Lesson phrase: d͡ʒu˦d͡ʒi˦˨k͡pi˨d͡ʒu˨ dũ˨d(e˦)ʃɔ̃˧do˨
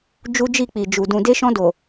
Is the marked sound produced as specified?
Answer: no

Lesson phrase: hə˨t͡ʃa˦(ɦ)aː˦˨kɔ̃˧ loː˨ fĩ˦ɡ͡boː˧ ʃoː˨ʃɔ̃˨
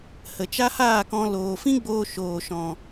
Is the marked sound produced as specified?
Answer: no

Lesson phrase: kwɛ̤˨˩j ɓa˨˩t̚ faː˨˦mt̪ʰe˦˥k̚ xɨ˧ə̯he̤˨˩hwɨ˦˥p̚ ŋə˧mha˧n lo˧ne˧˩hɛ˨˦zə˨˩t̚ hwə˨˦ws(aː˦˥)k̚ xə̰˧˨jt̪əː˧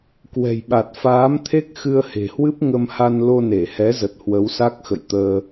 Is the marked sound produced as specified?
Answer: no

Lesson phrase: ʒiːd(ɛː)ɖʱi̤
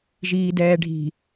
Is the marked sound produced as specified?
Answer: yes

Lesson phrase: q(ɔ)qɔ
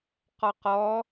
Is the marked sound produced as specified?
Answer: yes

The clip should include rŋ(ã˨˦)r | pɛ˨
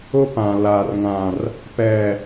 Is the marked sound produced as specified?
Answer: no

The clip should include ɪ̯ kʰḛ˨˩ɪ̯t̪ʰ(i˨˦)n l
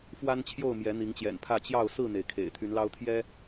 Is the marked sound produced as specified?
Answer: no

